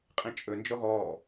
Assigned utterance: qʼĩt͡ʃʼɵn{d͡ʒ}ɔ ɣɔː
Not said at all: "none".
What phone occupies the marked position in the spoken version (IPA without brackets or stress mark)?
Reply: d͡ʒ